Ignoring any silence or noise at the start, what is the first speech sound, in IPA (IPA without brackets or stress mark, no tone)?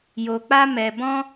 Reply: j